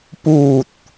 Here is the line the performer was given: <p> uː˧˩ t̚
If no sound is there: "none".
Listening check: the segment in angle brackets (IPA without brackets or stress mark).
p